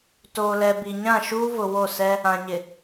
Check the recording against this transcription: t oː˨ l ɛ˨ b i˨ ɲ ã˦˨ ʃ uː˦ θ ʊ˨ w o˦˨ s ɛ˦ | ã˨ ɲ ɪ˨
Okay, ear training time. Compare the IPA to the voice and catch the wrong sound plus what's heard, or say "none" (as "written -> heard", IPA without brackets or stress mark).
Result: θ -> v